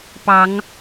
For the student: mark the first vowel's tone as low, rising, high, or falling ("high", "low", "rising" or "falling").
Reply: rising